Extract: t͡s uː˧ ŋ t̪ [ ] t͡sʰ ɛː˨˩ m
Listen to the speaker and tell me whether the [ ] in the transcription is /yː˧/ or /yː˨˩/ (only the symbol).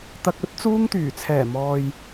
yː˨˩